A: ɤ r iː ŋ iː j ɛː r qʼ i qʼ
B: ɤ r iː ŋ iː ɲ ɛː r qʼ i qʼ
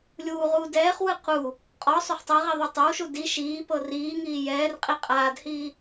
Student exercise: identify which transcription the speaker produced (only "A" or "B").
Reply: A